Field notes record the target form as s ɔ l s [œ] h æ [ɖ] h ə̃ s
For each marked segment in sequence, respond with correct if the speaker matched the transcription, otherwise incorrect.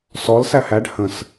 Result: incorrect, correct

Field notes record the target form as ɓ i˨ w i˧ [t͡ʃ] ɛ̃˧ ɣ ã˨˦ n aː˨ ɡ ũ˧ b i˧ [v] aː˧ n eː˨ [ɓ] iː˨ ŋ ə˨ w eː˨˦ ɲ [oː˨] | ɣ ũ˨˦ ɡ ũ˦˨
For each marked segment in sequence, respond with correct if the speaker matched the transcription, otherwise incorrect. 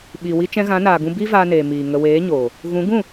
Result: correct, correct, incorrect, correct

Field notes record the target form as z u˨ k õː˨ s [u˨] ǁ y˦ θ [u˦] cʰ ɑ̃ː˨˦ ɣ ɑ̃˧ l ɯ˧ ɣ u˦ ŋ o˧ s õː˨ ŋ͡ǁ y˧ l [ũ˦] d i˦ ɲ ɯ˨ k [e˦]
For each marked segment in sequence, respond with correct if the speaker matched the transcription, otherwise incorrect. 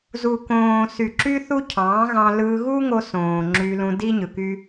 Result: incorrect, correct, incorrect, incorrect

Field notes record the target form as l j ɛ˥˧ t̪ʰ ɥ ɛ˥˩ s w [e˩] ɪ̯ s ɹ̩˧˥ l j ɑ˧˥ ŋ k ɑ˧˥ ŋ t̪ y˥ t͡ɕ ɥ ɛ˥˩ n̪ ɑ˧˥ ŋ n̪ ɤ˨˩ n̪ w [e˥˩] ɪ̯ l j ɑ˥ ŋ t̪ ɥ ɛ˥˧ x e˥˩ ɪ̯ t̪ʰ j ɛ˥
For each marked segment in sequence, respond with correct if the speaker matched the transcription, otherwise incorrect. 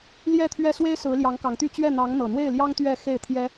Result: incorrect, correct

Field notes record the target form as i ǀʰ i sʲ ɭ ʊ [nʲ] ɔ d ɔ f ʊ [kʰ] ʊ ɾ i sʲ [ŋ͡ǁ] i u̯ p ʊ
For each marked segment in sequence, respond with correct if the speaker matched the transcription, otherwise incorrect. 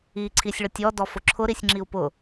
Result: incorrect, incorrect, correct

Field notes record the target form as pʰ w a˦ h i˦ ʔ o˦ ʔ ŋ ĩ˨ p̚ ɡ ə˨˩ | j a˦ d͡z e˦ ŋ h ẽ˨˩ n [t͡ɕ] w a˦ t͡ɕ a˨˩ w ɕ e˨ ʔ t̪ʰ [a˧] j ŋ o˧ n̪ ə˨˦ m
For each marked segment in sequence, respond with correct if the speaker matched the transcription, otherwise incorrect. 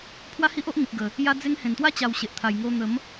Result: incorrect, incorrect

